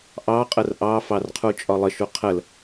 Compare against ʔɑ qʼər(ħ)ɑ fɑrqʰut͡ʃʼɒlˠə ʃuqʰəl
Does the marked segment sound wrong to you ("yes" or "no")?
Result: yes